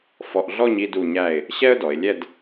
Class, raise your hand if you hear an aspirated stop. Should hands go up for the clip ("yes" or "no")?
no